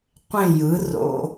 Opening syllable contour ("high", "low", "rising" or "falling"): falling